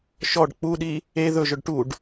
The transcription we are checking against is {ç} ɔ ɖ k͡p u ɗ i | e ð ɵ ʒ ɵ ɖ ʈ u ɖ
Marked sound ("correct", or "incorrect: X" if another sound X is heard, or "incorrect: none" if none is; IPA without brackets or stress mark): incorrect: ʃ